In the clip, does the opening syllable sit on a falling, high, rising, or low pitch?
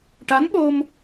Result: rising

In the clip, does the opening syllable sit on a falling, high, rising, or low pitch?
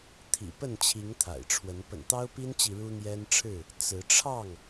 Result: low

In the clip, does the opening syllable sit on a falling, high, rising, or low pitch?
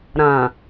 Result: low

